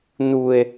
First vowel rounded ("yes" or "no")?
yes